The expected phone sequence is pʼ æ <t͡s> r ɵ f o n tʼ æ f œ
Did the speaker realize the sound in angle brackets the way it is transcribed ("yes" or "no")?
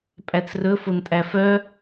yes